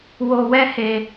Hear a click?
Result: no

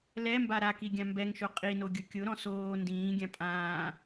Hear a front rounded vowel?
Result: no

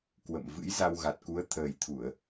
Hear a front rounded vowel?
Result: no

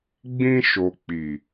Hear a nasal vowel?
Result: yes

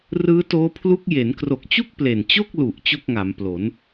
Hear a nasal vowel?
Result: no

